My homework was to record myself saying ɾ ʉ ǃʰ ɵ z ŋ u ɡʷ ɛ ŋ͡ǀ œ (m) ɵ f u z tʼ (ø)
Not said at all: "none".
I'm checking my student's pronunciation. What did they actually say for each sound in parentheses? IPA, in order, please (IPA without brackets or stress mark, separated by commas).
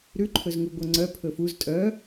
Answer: pʰ, œ